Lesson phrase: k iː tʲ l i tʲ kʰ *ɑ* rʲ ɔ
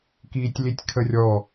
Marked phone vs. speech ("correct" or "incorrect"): incorrect